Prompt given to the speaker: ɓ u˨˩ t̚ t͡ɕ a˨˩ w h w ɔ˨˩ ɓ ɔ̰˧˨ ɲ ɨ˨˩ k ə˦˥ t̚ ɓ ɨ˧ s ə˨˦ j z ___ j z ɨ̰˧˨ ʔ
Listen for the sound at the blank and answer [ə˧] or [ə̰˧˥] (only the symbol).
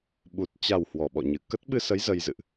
ə˧